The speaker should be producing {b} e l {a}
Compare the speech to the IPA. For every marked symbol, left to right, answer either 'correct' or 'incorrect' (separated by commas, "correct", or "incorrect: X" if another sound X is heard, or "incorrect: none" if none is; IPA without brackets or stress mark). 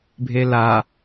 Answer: incorrect: bʱ, correct